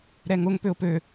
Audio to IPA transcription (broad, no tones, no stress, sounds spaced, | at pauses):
ɾ ɛ ŋ ʊ ŋ p ø ʊ̯ p ø